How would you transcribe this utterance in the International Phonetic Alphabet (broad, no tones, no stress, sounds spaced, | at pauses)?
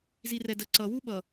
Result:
z i r ɛ d ə ǀ ʌ w u ɓ ʌ